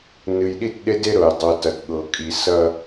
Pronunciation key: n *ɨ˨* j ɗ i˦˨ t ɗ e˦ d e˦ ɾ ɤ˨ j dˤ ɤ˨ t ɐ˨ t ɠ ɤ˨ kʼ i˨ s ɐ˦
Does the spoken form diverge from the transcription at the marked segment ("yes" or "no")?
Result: no